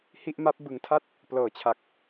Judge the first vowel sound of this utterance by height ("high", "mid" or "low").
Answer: high